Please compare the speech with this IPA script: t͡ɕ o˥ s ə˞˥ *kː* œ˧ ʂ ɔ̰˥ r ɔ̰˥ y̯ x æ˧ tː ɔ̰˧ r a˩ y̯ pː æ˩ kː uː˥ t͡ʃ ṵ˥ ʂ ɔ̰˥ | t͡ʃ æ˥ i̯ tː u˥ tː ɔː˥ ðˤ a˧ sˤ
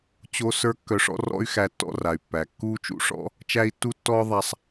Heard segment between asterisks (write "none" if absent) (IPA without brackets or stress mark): kː